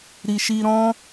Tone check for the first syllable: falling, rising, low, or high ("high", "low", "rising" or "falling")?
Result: low